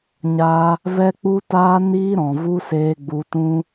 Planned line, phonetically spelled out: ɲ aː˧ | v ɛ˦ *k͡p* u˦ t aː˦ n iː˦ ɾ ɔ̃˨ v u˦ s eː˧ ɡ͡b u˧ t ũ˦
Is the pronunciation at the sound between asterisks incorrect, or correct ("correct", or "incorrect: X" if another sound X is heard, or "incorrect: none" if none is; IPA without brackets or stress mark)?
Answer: correct